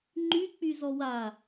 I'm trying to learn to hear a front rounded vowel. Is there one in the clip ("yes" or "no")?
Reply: yes